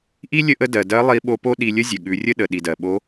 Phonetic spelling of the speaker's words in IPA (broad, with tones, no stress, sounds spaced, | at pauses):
ʔ i˥ lʲ ə˥ ʔ ə˥ d ɜ˩ d ɜ˧˥ lˠ i˧˥ ɓ o˧˥ p o˥ ɗ i˧ lʲ ə˥ zʲ ə˩ ɠ ʉ˩˧ rʲ ə˥ ɗ ə˩ ɗ i˩ d ɜ˩ ɓ o˧˥